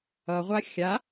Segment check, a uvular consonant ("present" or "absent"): present